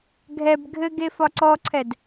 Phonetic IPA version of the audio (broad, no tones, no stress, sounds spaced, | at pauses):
ɡʱ ɛ b ɡʱ ɘ ɡ e f ɒ ǀ ɔ ǀʰ ɛ d